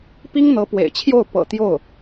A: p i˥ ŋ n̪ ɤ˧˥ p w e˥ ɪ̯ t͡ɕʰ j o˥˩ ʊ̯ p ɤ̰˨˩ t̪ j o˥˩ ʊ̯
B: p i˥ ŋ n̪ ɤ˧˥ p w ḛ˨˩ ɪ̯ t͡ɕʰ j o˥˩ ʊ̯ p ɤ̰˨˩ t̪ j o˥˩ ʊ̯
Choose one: B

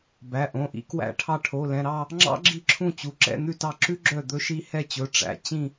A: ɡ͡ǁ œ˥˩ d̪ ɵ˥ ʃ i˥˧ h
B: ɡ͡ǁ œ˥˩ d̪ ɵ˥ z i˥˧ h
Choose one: A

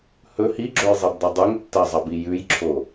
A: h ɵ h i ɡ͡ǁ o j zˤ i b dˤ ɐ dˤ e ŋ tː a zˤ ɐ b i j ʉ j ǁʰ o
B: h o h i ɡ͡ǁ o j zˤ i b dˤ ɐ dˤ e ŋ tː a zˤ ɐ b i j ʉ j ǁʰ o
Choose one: A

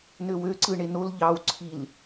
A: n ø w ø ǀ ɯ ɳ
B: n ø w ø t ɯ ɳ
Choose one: A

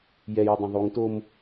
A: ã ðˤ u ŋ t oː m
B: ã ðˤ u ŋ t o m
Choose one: A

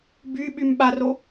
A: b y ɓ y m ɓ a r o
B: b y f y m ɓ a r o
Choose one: A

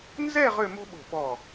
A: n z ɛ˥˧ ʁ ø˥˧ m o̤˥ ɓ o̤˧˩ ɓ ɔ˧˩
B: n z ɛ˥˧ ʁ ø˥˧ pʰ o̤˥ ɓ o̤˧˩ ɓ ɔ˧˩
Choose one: A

